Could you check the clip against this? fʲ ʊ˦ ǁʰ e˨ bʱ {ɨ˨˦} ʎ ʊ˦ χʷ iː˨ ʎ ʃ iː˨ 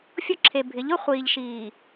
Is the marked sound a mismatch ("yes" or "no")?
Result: yes